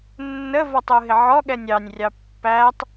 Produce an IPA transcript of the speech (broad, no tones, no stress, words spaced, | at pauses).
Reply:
nːəvɔtˤuɦɪ ʕɔɠɛnʲ ɑnʲrʲɑ pːætˤ